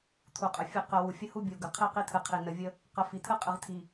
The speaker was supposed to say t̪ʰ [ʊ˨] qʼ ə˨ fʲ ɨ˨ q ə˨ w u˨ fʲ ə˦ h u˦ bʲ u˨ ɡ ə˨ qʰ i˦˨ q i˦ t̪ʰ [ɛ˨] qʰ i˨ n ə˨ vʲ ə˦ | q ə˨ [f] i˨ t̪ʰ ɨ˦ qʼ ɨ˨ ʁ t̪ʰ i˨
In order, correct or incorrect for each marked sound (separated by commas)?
incorrect, incorrect, correct